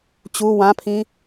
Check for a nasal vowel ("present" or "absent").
present